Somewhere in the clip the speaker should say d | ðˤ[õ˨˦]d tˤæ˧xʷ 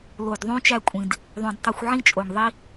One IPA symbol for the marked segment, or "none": õ˨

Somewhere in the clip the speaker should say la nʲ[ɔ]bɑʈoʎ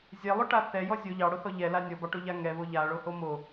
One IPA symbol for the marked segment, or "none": ɔ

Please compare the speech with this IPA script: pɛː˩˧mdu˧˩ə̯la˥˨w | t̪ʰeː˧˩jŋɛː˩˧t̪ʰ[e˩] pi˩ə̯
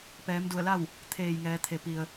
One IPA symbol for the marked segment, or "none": e˩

